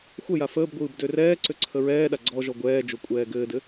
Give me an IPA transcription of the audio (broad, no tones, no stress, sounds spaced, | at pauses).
xʷ ə j a f əː b ɡʷ ɯː b d ø r ɛː ǀ ø ǀʰ ə ɹ ɛː ɗ a ɡ͡ǀ ɔ ʒ ɔ ɡʷ ɛː d͡ʒ o kʷʼ ɛː ɡ ɘː d ɘ